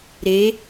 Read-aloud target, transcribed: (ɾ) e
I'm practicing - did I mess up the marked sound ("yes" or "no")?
no